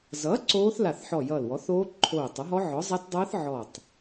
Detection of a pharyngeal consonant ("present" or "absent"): present